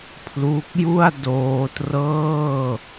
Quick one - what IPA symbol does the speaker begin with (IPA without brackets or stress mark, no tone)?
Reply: pʰ